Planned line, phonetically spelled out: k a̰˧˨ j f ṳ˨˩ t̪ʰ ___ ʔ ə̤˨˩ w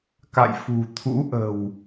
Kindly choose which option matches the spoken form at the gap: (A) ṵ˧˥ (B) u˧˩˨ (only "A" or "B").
A